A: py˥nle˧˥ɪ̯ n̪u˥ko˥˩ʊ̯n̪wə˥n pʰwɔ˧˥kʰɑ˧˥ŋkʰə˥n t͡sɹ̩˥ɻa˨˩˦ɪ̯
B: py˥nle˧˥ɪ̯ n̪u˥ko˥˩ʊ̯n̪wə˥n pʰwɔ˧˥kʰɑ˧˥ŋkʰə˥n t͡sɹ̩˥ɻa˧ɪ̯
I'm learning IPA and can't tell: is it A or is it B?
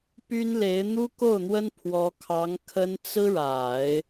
A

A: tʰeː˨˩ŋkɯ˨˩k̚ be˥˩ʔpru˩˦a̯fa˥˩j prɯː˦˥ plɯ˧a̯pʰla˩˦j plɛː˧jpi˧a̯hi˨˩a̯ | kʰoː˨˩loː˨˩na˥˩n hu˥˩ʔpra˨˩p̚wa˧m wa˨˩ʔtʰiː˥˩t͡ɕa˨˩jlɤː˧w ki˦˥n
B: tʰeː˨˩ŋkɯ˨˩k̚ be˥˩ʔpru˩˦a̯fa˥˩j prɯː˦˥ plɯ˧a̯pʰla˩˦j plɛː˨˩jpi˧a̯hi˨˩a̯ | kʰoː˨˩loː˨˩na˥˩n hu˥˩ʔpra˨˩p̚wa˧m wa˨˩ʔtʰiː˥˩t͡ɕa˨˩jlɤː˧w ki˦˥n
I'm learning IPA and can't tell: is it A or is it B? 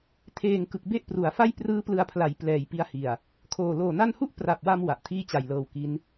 B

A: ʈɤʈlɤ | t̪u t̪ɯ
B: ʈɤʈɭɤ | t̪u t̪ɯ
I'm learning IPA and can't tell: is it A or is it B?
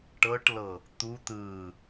A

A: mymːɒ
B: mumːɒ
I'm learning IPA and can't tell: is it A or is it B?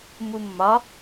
B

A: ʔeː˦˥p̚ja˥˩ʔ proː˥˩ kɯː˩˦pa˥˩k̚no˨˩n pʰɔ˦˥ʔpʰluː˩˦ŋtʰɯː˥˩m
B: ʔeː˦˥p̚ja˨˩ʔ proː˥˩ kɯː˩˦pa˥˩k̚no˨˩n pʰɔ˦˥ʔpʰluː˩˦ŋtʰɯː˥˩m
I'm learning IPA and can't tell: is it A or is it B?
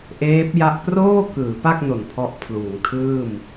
A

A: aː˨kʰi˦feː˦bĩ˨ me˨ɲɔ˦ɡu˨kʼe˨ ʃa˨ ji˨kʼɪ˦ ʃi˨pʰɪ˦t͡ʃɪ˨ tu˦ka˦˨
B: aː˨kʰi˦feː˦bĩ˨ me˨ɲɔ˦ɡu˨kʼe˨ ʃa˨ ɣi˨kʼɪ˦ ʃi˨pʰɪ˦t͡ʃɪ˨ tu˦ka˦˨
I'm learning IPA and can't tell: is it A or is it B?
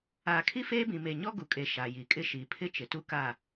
A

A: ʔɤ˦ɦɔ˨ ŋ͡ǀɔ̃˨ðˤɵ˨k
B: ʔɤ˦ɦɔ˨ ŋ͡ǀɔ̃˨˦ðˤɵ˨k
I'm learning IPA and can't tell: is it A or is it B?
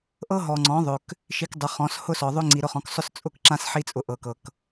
B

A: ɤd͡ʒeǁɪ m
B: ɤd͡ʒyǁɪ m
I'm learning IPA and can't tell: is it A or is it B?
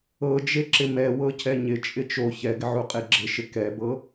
A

